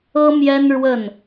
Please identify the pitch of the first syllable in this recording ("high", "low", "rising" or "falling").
high